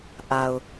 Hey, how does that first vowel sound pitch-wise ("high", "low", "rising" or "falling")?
low